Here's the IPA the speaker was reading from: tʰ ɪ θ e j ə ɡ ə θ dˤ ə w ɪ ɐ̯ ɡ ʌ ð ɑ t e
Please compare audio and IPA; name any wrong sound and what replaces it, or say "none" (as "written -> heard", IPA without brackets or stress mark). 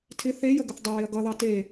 none